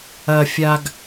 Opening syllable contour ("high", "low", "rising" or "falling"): low